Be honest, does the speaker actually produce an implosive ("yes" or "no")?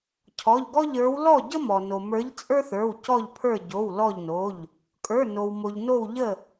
no